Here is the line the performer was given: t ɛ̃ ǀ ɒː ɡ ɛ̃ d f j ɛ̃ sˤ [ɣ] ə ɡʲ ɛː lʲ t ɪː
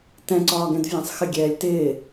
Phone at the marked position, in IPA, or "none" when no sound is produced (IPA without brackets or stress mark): x